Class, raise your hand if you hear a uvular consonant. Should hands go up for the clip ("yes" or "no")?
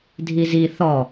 no